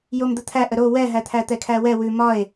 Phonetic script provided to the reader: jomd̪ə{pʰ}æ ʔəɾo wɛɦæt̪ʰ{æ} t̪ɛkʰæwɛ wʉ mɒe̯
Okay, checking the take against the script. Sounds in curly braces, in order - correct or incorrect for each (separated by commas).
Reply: incorrect, correct